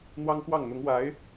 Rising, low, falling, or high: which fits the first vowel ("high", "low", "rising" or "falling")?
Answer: high